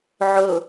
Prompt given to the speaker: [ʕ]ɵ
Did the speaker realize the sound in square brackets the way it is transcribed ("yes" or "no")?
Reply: yes